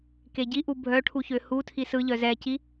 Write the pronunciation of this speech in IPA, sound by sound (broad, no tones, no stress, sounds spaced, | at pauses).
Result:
k e ɟ i ʔ u bʱ œ ʈʰ u ç ø h u tʰ i s ɯ ʎ œ z ɛ c i